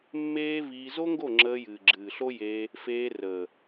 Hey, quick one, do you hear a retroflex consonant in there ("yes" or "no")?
no